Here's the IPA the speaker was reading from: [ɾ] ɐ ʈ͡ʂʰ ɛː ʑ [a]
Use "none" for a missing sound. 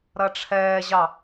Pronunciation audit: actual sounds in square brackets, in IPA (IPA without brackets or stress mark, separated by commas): ɾ, ɑ